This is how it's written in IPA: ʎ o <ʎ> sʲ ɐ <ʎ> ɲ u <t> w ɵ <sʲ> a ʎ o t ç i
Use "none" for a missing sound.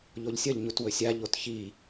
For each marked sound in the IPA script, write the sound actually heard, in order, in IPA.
ʎ, ʎ, t, sʲ

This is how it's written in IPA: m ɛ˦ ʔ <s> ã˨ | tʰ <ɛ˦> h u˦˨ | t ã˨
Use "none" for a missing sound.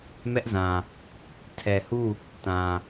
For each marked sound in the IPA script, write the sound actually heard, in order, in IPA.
z, ɛ˨

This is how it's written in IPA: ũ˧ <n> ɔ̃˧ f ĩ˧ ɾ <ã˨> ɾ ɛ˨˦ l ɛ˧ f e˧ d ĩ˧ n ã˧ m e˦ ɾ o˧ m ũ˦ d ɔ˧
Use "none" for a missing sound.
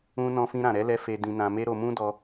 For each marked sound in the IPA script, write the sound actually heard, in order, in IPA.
n, ã˨

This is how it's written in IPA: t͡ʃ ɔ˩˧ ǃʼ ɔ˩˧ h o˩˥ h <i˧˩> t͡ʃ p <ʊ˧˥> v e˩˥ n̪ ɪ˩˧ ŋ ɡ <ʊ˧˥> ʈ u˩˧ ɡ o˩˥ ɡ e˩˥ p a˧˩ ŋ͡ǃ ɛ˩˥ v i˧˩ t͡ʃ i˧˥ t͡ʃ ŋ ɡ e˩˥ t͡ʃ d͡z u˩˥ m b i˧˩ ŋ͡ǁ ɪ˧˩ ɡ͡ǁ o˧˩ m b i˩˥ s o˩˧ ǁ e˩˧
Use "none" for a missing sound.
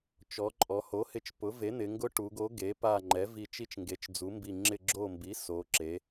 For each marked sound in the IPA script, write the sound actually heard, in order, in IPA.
ɪ˧˩, ʊ˩˥, ʊ˧˥

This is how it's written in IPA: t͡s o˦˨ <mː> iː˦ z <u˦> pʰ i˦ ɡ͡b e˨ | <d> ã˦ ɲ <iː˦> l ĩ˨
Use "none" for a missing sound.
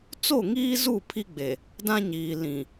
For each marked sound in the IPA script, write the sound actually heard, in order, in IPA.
ŋ, u˦˨, d, iː˨

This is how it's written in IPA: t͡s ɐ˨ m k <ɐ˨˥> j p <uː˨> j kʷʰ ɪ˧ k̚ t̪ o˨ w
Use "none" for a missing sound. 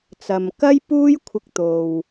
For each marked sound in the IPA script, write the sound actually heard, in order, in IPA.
ɐ˥, uː˥

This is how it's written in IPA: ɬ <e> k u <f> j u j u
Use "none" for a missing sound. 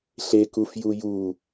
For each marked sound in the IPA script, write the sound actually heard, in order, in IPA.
e, f

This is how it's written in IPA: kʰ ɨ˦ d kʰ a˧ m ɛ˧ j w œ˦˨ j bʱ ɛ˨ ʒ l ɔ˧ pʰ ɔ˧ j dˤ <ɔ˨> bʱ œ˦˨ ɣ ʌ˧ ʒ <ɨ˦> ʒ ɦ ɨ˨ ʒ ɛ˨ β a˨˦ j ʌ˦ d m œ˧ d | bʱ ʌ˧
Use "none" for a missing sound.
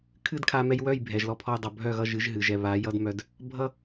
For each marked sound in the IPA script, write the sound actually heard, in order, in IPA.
ʌ˨, ɨ˨˦

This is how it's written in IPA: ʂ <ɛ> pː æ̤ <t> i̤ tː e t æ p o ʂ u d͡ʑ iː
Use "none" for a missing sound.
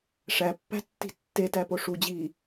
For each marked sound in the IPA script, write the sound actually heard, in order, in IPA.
æ, tː

